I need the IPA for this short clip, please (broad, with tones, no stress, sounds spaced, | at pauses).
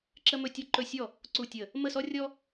ǁ ə˦ m ɵ˦ tʲ ɔ˦ ǃ ɵ˦˨ sʲ ɔ˦˨ | ǀ u˦˨ tʲ ə˦˨ | m ə˦˨ s ɔ˦ rʲ ɔ˦